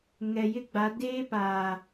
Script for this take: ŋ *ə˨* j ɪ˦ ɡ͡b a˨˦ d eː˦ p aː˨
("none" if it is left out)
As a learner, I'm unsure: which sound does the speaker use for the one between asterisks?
ɛ˨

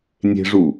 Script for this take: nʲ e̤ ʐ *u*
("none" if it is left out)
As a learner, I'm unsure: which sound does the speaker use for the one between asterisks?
u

